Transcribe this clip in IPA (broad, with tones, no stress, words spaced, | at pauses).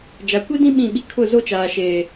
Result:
d͡ʒa˨kʷi˦dĩ˦ ɓĩ˦˨ɓi˦ kʰʊ˦˨zo˦t͡ʃaː˨ʃeː˨